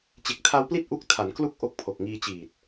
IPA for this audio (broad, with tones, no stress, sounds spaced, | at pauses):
t͡ɕ e˨˩ k̚ tʰ a˧ w p l i˥˩ t̚ ʔ u˦˥ k̚ tʰ a˩˦ n k l u˥˩ k̚ ʔ o˦˥ k̚ pʰ o˨˩ k̚ ŋ iː˧ t͡ɕ iː˨˩ t̚